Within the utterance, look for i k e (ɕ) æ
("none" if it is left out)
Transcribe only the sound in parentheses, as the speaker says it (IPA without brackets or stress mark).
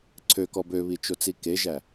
ʒ